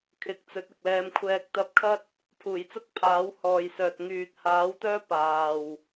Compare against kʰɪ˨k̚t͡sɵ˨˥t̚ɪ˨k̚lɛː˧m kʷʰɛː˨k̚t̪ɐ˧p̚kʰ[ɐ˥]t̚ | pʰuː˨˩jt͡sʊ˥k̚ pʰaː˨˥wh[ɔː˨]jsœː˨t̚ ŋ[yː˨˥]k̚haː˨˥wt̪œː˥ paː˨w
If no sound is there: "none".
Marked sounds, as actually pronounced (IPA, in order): ɐ˥, ɔː˨, yː˨

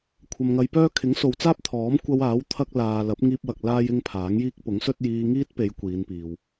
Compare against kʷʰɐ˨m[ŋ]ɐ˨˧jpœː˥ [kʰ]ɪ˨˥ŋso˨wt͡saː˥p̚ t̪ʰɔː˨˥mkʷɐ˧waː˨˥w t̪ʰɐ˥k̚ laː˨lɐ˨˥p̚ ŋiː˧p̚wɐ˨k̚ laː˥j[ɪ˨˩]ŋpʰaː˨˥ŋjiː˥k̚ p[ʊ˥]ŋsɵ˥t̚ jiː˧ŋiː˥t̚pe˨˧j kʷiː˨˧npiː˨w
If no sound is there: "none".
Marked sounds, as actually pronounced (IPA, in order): ŋ, kʰ, ɪ˥, ʊ˨˥

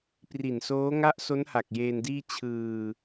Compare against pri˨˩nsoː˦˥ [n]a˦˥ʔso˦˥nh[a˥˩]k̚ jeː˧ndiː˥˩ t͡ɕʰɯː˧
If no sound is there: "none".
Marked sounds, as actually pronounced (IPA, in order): ŋ, a˨˩

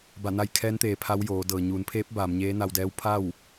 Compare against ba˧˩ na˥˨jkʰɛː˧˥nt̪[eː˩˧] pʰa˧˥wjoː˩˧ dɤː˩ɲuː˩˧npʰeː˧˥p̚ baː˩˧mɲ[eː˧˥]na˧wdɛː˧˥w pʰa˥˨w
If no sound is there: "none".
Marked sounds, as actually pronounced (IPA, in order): eː˩˧, eː˧˥

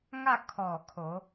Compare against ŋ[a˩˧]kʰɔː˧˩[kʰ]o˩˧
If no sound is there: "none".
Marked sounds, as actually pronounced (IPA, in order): a˥˨, kʰ

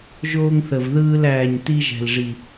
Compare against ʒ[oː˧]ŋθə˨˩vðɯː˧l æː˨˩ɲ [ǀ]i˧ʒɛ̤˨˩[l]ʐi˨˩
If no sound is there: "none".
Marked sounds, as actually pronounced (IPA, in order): oː˧, t, l

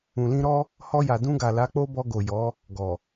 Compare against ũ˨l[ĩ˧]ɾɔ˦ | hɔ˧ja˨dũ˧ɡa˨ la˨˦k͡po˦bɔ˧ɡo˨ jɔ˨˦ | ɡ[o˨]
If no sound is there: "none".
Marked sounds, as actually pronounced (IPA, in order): ĩ˧, ɔ˨

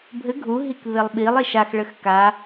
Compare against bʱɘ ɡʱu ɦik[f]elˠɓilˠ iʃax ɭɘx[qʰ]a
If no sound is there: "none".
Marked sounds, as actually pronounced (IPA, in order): β, k

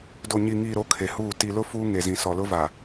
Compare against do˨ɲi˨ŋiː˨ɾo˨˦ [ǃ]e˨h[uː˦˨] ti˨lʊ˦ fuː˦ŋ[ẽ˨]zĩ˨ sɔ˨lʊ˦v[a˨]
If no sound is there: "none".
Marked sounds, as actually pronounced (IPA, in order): kʰ, uː˦˨, e˨, a˨

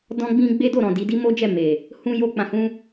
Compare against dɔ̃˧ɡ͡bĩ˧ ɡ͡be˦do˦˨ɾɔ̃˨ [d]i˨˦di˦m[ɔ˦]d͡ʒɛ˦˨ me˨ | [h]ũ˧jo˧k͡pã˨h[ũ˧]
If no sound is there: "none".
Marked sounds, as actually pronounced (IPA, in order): d, o˦, h, ũ˧

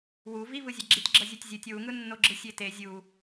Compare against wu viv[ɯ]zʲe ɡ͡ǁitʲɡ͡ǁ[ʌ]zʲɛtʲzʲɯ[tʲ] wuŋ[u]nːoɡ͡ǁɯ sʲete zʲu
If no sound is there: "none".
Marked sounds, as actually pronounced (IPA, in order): ɯ, ʌ, tʲ, ɯ

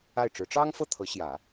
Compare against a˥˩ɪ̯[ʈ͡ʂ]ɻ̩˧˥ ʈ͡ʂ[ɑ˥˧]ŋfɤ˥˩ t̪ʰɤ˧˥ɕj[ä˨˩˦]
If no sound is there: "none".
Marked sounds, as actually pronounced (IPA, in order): ʈ͡ʂ, ɑ˥, ä˨˩˦

